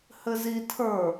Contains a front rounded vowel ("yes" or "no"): no